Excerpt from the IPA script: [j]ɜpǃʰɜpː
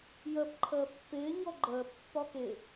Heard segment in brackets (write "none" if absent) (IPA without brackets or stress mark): j